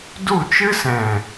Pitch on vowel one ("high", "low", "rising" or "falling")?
falling